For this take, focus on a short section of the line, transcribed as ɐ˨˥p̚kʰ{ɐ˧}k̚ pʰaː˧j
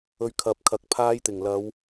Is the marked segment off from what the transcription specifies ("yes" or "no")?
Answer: yes